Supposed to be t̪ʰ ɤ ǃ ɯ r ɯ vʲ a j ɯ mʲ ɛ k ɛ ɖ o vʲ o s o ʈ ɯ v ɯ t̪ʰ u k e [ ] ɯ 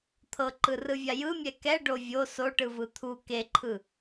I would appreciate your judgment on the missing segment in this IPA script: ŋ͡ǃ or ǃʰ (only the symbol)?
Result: ǃʰ